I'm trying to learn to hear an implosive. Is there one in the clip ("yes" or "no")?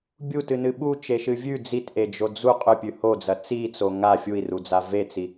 yes